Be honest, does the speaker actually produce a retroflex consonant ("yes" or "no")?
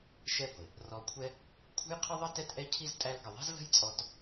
no